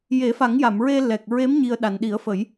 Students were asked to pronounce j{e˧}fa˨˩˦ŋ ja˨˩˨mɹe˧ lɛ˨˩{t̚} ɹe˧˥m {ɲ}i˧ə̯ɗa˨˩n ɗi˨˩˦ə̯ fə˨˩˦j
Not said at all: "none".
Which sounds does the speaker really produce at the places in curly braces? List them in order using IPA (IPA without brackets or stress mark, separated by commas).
e˨˩˦, k̚, ɲ